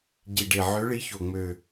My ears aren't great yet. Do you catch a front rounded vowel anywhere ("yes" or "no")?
yes